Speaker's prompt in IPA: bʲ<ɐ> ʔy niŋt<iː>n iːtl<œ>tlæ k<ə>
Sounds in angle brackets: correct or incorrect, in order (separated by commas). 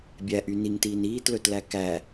incorrect, correct, incorrect, incorrect